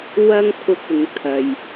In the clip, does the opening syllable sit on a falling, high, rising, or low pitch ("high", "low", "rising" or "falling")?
high